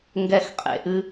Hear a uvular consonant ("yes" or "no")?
yes